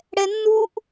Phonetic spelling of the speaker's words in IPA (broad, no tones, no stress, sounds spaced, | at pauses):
ɽ ɛ nː u ʔ